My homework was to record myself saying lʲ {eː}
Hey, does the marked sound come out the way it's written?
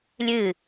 no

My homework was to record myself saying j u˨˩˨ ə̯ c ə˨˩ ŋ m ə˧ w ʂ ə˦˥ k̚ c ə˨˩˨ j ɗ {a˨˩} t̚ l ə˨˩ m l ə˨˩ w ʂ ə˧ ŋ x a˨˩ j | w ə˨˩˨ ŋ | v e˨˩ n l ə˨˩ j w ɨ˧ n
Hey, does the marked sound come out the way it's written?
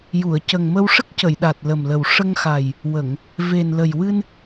yes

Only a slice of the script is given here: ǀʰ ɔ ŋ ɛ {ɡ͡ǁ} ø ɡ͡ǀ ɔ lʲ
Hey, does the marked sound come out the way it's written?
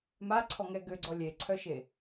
no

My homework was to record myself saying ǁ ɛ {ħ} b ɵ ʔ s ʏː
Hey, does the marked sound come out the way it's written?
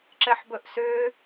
yes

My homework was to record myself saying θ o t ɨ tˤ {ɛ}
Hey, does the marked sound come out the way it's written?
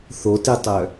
no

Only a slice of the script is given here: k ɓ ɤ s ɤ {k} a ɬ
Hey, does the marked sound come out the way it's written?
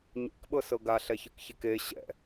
no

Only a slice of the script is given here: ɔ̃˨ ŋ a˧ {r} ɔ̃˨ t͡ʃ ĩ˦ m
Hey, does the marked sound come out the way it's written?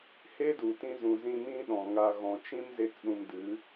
no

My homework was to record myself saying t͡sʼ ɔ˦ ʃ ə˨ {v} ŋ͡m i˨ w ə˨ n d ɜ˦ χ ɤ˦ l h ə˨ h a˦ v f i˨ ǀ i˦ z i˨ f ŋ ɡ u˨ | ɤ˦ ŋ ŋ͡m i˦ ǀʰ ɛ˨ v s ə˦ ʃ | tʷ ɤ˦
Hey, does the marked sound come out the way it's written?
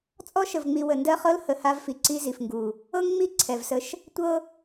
yes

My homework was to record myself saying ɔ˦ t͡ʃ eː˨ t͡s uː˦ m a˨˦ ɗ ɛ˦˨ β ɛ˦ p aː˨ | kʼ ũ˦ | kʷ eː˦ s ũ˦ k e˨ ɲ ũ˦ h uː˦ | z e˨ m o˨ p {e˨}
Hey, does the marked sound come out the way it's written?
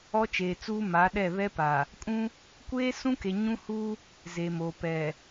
no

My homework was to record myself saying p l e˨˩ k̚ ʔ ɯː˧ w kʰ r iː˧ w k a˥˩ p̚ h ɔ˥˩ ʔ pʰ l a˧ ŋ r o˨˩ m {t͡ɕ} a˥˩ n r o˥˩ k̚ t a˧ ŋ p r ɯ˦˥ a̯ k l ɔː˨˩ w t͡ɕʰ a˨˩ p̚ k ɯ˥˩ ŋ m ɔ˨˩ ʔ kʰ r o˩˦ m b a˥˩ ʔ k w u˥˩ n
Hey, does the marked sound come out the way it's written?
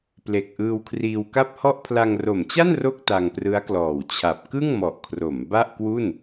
yes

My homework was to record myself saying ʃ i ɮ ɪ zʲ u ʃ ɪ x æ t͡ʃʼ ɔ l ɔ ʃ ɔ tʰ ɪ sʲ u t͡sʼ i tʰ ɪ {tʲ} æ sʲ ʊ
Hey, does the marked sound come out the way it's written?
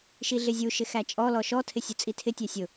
yes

